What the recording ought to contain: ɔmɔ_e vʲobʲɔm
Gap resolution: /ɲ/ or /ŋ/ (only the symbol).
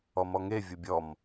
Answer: ŋ